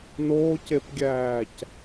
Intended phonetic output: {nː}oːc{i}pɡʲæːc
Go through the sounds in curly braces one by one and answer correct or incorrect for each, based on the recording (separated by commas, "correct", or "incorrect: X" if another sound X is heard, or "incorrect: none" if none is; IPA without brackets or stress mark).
incorrect: n, incorrect: e